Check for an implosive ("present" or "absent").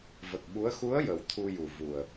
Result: present